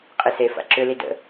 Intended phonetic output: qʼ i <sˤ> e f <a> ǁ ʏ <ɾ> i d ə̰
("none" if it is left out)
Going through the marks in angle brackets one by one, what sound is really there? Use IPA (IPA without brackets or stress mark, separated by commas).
s, a̰, l